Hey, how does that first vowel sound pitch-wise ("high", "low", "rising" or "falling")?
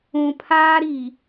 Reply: low